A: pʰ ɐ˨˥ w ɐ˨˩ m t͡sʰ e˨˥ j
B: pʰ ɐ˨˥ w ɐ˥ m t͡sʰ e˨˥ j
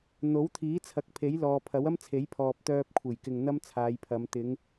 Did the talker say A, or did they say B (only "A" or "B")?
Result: B